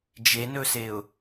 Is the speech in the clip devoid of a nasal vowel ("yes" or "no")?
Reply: yes